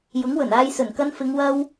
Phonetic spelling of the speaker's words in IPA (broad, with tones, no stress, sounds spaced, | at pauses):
j ʊ˨˥ ŋ w ɵ˨˩ n aː˧ j s ɵ˨˩ n k ɐ˧ n f ɪ˨˧ ŋ w ɐ˥ w